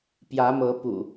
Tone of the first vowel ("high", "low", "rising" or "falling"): rising